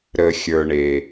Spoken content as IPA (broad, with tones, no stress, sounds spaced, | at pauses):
ɾ ə˩ xʲ ə˞˩ ɳ e˩